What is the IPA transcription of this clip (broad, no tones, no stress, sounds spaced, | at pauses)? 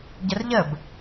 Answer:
ɟ ə r ʎ ə b